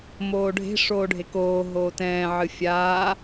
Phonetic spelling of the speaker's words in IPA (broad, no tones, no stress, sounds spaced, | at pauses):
m oː ɖʱ e̤ ʂ oː ɖʱ e k oː ɦ oː t ɛ̃ː ʕ ɨ fʲ aː